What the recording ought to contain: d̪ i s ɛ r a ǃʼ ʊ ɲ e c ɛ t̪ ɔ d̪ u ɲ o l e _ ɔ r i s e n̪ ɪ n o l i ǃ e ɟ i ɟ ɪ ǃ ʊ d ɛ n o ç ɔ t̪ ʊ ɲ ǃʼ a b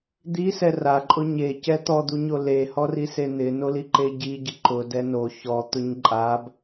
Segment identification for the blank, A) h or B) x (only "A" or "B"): A